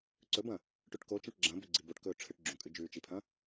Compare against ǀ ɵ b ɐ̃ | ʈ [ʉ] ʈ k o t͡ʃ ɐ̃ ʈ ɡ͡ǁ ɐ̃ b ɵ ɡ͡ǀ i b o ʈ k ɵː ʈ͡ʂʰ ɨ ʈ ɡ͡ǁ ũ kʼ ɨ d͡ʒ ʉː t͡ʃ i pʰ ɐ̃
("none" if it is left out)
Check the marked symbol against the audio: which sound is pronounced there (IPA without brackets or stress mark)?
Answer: ʉ